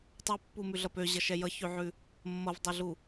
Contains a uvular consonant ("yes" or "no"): no